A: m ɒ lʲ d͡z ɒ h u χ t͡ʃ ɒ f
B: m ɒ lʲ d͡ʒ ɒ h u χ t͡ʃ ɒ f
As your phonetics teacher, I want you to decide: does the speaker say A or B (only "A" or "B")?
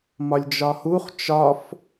B